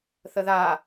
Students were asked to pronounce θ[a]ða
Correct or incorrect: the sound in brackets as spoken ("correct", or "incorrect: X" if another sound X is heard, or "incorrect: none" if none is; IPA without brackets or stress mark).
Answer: incorrect: ə